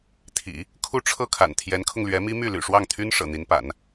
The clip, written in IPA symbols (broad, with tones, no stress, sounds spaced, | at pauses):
t̪ʰ ḭ˨˩˦ | kʰ u˥˧ ʈ͡ʂʰ ɤ˥˩ kʰ a̰˨˩ n t̪ʰ j ɛ˧˥ n kʰ ʊ˧ ŋ l ɥ ɛ˧˥ m i˥ m y˥˩ l y̰˨˩ ʂ w ɑ˥˩ ŋ t̪ʰ y˥ n ʂ ɤ̰˨˩ n̪ i˧˥ n p a̰˨˩˦ n